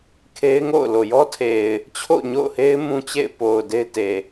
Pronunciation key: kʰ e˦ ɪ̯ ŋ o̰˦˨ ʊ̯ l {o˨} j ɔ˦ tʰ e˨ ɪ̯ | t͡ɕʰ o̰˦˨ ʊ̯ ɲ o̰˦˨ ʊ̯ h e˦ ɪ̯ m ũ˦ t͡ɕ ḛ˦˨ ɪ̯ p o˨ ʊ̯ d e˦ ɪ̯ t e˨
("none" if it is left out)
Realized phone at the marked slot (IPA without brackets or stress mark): o˨